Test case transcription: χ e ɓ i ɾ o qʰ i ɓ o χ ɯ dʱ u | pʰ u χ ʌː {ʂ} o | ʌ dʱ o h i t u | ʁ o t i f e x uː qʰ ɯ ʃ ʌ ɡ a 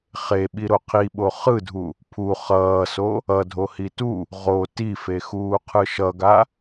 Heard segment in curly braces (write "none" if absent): s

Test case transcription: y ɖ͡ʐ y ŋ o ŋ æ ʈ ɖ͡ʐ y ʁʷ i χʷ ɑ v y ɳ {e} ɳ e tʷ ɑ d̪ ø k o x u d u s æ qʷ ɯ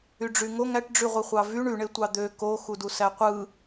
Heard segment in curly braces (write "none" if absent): y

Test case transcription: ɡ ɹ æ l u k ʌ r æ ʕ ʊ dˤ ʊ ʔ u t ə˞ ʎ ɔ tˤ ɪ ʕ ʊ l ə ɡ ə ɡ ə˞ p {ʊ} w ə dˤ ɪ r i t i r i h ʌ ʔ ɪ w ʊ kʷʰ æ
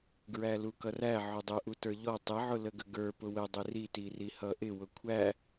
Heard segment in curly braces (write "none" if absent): ʊ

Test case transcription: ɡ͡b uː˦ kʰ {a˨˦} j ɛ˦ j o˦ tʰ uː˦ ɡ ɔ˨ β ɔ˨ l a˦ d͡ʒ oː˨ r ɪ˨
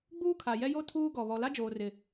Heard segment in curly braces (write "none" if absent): a˨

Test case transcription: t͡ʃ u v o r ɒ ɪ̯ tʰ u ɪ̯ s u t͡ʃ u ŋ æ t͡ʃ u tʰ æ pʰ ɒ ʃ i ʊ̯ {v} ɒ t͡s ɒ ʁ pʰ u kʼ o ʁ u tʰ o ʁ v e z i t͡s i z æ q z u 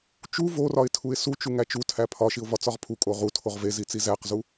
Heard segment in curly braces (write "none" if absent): v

